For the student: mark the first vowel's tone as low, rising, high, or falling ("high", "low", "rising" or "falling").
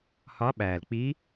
rising